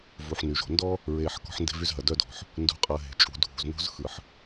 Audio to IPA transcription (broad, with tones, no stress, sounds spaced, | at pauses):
v u˨ ħ n y˨ ʒ o̤˨ n d ɔ˦ | ɹ eː˨ ħ k ɔ̤˦ ħ n d e̤˦ v y˦ z ɦ ɐ˨ d œ˦ d ɔ̤˨ ħ | n d ṳ˨ qʼ ɐ˨ ɦ e̤˨ t͡ʃʼ ṳ˨˦ dʱ ṳ˨ z n o̤˦ z x ɯ˨ ħ